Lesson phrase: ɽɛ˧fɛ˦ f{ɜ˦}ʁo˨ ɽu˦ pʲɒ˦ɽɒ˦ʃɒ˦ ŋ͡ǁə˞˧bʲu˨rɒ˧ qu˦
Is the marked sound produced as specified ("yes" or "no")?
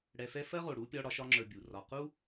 yes